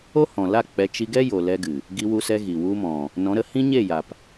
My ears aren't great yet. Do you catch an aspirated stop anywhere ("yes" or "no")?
no